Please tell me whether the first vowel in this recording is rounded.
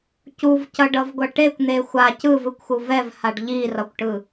yes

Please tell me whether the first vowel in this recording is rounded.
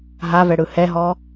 no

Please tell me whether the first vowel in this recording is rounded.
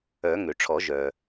yes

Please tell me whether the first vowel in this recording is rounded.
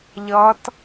no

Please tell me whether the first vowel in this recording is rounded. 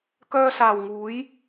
yes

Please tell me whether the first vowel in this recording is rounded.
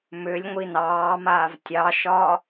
yes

